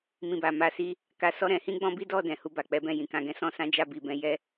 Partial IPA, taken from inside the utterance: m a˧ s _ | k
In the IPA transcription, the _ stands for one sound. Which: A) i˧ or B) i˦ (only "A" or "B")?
A